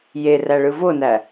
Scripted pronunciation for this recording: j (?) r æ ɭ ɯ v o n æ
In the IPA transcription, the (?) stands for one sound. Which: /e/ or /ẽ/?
e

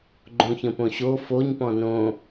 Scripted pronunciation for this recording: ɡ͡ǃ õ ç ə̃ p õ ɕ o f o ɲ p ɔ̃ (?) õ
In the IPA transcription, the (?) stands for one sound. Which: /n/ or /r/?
n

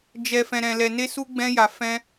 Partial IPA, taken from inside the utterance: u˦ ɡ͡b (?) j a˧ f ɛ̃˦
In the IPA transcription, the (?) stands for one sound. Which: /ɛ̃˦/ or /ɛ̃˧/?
ɛ̃˦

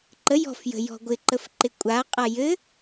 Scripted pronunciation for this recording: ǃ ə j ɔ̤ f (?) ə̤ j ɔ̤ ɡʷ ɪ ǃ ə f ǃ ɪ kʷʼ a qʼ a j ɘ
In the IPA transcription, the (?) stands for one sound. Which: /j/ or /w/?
j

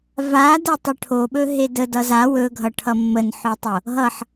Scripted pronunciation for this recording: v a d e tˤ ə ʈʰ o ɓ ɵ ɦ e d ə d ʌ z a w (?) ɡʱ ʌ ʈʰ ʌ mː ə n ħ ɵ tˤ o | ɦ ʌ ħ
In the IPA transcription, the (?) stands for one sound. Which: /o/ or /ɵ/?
ɵ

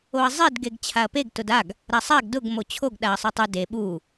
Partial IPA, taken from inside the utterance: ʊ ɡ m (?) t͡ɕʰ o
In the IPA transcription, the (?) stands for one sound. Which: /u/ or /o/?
o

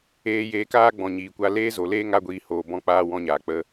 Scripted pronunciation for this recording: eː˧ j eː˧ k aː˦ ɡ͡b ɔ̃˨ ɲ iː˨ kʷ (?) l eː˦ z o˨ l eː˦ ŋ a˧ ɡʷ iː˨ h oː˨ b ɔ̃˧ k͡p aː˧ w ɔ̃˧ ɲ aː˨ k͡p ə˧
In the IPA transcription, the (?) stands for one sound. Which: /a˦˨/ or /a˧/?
a˧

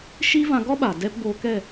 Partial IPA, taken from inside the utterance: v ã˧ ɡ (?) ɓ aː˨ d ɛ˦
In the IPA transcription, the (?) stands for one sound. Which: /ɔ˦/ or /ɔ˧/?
ɔ˦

